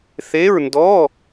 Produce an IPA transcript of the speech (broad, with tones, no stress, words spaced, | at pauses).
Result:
θe˧˥˧ɹndɔ˧˥˧